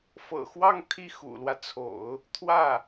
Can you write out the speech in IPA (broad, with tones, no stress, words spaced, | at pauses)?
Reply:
fɤ̰˨˩xwɑ˥˧ŋ t̪ʰi˥˩xṵ˨˩lwä˦t͡sʰo̰˨˩˦ʊ̯ | t̪ʰwä˥˩